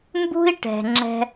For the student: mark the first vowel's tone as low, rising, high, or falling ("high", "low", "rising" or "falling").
high